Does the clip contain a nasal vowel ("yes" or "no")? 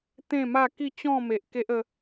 yes